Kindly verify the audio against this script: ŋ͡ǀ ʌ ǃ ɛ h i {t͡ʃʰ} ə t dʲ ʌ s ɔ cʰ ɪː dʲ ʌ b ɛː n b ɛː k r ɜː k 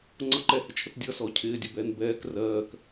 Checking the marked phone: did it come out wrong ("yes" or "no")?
no